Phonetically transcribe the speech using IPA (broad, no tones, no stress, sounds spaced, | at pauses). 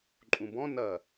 ǃʼ ũ b ɔ̃ n ɐ